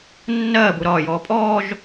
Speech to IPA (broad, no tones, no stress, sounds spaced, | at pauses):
nː ɜː b u ɾ ɒː j ɔː pʼ ɔː ʒ